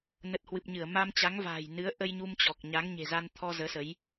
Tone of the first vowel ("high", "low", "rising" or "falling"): low